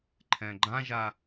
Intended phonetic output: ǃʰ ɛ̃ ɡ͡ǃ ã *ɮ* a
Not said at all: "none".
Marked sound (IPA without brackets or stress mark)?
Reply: ʒ